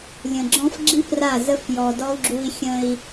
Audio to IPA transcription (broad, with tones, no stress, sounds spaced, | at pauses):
lʲ ə̃˨ ɡ͡ǁ ɔ̃˦ f ɡ͡ǁ i˦ p r a˦˨ z ə˦ f j ɔ˨ d ɔ˦ u̯ ɡ͡ǁ u˦ i̯ xʲ ə̃˦ i̯